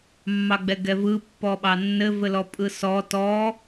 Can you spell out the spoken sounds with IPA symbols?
mː ɑ ɡ͡b ɛ ɡ ɛ v ɯ pː ɔ ɓ ɑ nː ɘ v ɘ l ɔ pʼ ɯ s ɔ t ɔ

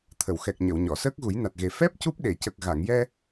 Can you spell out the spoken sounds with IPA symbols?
t̪ʰ ə˨˩˨ w x ɛ˨˩ k̚ ɲ ə˨˩˨ w ɲ ɔ˨˩˨ s əː˦˥ k̚ ɣ u˨˩˦ j n a˨˩ t̚ ɣ e˨˩ f ɛ˦˥ p̚ c u˦˥ p̚ ɗ e˨˩˨ c ə˨˩ k̚ ɣ a˨˩˨ ŋ j ɛ˧

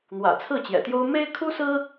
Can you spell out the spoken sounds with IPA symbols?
n̪ w ä̰˨˩ t͡sʰ ɹ̩˥˩ t͡ɕ j ɛ̰˨˩ t̪ j o˥ ʊ̯ m e˥ ɪ̯ kʰ u˥ s ɹ̩˥

